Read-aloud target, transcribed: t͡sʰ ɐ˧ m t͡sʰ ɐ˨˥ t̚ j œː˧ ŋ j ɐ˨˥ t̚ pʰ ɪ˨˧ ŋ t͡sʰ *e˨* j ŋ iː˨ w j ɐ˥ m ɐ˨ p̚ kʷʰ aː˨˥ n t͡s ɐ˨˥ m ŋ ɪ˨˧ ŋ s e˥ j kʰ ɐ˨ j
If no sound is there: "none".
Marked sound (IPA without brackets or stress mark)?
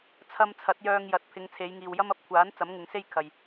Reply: e˨˧